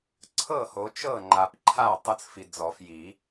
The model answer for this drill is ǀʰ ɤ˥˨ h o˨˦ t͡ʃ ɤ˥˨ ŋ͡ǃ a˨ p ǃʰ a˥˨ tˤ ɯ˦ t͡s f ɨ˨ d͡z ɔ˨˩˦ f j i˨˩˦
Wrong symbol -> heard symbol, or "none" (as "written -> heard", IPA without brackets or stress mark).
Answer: ɨ˨ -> i˨